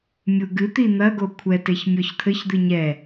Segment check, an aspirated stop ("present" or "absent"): present